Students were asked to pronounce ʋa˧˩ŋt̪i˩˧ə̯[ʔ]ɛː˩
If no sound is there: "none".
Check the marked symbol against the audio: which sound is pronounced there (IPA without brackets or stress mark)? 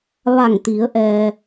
ʔ